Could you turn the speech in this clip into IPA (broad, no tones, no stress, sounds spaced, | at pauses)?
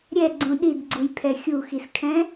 ɾʲ ɛ ɡ͡ǀ ũ ɗ i d ɡ͡ǀ u j pʰ ɛ xʲ u x i s kʰ ɛ̃